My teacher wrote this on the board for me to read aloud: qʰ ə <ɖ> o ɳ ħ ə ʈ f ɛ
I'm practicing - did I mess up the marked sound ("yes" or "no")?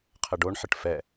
no